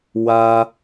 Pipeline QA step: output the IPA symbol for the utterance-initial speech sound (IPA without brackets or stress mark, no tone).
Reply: w